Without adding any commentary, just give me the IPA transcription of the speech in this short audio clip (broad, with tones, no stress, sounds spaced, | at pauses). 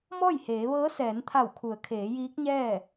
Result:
m ɔː˥˨ j h eː˩˧ ʋ ɤː˧˥ s ɛː˩˧ n t̪ʰ a˧˩ w kʰ u˩˧ ə̯ kʰ eː˩˧ j iː˧˥ k̚ ɲ ɛː˥˨